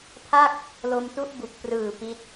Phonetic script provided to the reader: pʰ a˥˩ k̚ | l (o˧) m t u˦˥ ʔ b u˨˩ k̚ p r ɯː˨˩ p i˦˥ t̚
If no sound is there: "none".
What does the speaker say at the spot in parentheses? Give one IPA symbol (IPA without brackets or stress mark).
o˧